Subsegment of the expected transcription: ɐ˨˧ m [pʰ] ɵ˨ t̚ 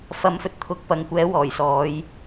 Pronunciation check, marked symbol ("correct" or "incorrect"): incorrect